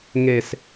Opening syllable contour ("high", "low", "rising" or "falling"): low